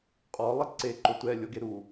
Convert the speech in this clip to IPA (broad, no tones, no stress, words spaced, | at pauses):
qʼɔ lˠɪǀe ǃʊtʷɛ lʲoɡeɾu